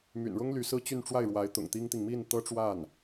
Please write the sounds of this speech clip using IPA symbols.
m y̰˨˩ n ɻ ʊ˥ ŋ l y˧˥ s ɹ̩˥ t͡ɕ y˥˧ n ʈ͡ʂ w a˥˩ ɪ̯ ɻ w a˧˥ ɪ̯ t̪ ʊ̰˨˩ ŋ t̪ i˥ ŋ t̪ i˨ ŋ m i˥˩ n t̪ ɤ˥ ʈ͡ʂ w a˥˩ n

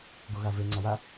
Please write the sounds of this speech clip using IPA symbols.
ɡ o ɣ a v e ŋ͡ǀ a w a

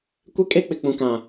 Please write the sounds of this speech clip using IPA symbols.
kʷ e˦ kʼ e˦ k͡p ɪ˨ k͡p ũ˨ k ã˨

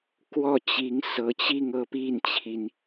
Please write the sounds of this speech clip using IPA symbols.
k w ɔ˥˩ t͡ɕ i˧˥ ŋ s ɤ˧˥ t͡ɕ i˥˧ ŋ ɤ˥˧ p i˥˩ n t͡ɕʰ i˩ n

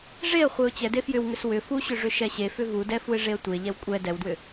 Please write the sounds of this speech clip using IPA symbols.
ʐ e ə̯ χʷ e ʊ̯ t͡ɕ ɛ d e f j ʏ w ŋ ʏ s w ʏ f u ɕ ʏ ʐ ʏ ʃ ɛ ɕ e f ʏ v u d ɛ f u ɪ̯ ʐ e ə̯ tʷ e ʎ ɛ w kʷʼ ɛ d ɛ w d w ʏ

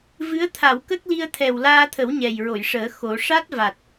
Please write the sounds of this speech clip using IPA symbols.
v ɨ˧˥ ə̯ t̪ʰ a˨˩˨ w k ə˦˥ k̚ l i˧ ə̯ t̪ʰ ɛ˨˩ w l aː˧ t̪ʰ ə˨˩˦ w ɲ ɛ˨˩ j ɹ o˨˩˨ j ʂ əː˨˩˦ x o˨˩˦ ʂ a˦˥ t̚ v a˨˩ t̚

